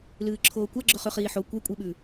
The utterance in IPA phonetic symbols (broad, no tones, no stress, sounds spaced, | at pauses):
l ɨː ǁʰ oː kʷ a ɡ͡ǁ ɵ χ ʉ χ iː ħ o kʷ e kʷʼ i ɓ ʉ